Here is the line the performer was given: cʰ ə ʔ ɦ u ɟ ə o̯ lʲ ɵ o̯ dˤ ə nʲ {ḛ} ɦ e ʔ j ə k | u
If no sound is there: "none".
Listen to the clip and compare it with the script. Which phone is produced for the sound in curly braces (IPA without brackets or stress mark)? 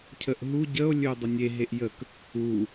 e